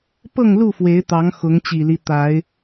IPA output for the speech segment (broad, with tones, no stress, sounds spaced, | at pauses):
p ɤ˥˨ ŋ l u˥˨ f w e˨˦ ɪ̯ t̪ ɑ˨˦ ŋ x ʊ˨˦ ŋ t͡ɕ i˨˩ l i˦ t̪ a˨˦ ɪ̯